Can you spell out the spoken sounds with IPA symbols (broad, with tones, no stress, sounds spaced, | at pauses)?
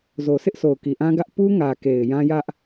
z o˨ s ɪ˦ ʔ sʰ o˨ ʊ̯ k i˨ ʔ ã˦ ɡ ä˦ ʔ p u˦ ŋ ä˨ k e˨ ɪ̯ j ã˦ j ä˦ ʔ